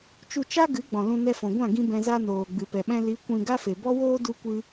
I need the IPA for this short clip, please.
t͡ʃ u˧ t͡ʃ a˦ ɡ ɨ˨˦ ɡ͡b ɔ̃˨ l ũ˧ n ɛ˧ f ɔ̃˨ ɡʷ ã˦˨ ɡ ĩ˦ b ɛ̃˧ z a˦ n oː˨ ɡ͡b ɨ˨ p ɛ˨ ɓ ɛ̃˧ l i˨˦ kʷ ĩ˧ ɡ a˦ f e˨ b ɔ˦ w oː˦ d u˦ kʷ ɨ˦

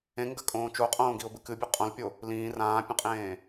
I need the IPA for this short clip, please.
ẽ ŋ ɡ ɐ kʼ õː t͡ʃ o qʼ õː ɡ i ʊ̯ b ɨ k ɨ bʲ ʉ qʼ õ l pʲ o | l ĩː r ãː pʲ ɐ̃ qʼ ẽː

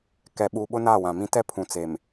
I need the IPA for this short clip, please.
k ɛ˨ ɓ u˨ ɓ ʊ˦ n a˦˨ w ã˨ m ĩ˦ t ɛ˦ pʰ ũ˨ t͡s e˨ m

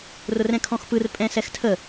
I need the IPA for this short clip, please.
r ʊ r ɛ̃ kʰ ɔ̃ x p ɯ r pʼ ɛ̃ s ɛ x tʰ ə

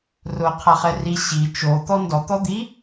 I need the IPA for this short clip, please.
r ʊ qʰ a χ ɛ r i ɕ i t͡ʃ o t̪ ɔ n d ɔ t̪ ɔ d̪ i

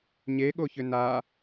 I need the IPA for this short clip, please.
ɲ e ɠ o ç ʏ n a

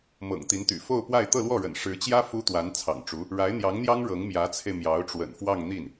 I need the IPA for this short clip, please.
m ɤ̰˨˩ ŋ t̪ i˧˥ n t̪ y̰˨˩ f o˥˧ ʊ̯ p w a˥˧ ɪ̯ t̪ ɤ˥˧ l w ɔ˥˩ ɻ ə̰˨˩ n ʂ ɻ̩˧˥ t͡ɕ j ä˥ f u˥ t̪ w a˧˥ n t͡sʰ ɑ̰˨˩ ŋ ʈ͡ʂ u˧˥ | ɻ a˧˥ ɪ̯ n̪ j ɑ˧˥ ŋ n̪ j ɑ˥ ŋ ɻ ɤ˧˥ ŋ m j ä˧˥ t͡sʰ e˧ ɪ̯ m j ɑ˧˥ ʊ̯ ʈ͡ʂ w ə̰˨˩ n f w ɑ˥˧ ŋ n̪ i˥˩ n

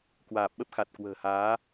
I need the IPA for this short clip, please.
k w aː˨˩ p̚ ɓ ə˦˥ p̚ x a˨˩ t̚ k w ə̤ː˨˩ h aː˨˦

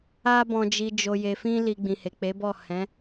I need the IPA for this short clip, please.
a˧ b ɔ̃˨ d͡ʒ i˨ d͡ʒ o˨ j e˨ f ĩ˧ l i˨ ɡ͡b ĩ˨ h e˨ k͡p e˨˦ b ɔ˦˨ h ɛ̃˨˦

